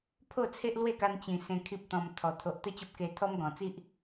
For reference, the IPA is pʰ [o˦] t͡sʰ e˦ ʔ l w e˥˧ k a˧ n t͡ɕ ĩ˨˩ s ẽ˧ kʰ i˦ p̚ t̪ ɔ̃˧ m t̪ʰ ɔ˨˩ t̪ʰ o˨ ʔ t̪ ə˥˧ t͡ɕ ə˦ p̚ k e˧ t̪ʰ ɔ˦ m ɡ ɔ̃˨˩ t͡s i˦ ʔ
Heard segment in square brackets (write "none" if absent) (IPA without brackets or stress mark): o˥˧